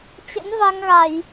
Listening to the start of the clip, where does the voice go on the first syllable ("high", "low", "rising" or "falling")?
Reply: rising